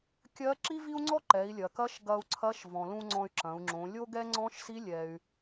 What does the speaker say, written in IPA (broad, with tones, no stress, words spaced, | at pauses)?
kʲɜ˧˥ǁi˥vi˥u̯ŋ͡ǀɔ˥ ǃɛ˩˧i̯lʲɐ˩kɐ˧˥ʃ ɡɐ˧u̯ǀʰɐ˧˥ʃvɔ̃˩ lũ˧ ŋ͡ǀɔ̃˧y̯ǁɐ̃˩˧u̯ŋ͡ǁõ˩˧ lʲo˥ɡɛ˥ ŋ͡ǀɔ̃˧˥ʃsi˧˥lʲɛ˩y̯